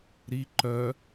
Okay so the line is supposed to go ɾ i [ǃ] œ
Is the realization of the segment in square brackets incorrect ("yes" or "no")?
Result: no